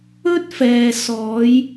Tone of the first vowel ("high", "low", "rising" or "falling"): high